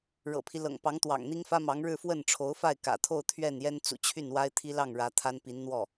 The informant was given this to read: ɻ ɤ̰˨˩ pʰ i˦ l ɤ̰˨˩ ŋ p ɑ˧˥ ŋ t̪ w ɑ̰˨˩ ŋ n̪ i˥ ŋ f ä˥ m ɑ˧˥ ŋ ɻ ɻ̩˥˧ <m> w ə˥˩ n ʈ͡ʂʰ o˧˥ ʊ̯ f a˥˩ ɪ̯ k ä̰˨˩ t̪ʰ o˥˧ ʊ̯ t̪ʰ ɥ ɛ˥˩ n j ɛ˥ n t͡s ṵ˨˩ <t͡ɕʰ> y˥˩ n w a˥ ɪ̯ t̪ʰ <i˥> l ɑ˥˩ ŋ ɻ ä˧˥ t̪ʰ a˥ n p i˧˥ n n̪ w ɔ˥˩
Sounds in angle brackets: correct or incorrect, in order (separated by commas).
incorrect, correct, correct